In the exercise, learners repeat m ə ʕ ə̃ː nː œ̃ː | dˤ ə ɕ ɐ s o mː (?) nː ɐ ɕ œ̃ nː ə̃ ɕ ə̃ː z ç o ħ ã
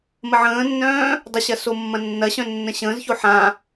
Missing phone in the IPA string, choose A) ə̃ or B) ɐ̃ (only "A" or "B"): B